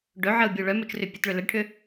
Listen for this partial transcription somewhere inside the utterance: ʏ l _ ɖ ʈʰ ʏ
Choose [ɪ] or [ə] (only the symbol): ə